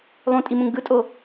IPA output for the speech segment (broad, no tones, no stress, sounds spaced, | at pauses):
lˠ ũ tʼ i m ũ ŋ ɡ ɯ tʼ o